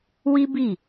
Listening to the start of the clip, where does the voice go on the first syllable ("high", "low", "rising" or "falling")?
high